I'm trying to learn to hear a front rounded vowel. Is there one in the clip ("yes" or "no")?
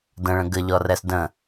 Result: no